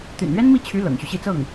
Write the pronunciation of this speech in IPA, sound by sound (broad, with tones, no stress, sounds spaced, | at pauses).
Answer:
t̪ y̰˨˩ n ɥ ɛ˥ n m i˥˩ t͡ɕʰ y˧˥ l ɤ̰˨˩ ŋ ɕ y˦ ɕ i˥˧ t͡s ɤ˥˩ ŋ